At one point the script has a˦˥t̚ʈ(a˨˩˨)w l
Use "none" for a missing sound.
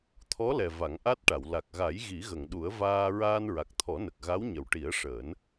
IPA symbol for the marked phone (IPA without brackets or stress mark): a˨˩˨